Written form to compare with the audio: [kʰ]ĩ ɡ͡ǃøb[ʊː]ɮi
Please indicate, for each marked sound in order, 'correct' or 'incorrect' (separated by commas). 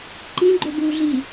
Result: incorrect, incorrect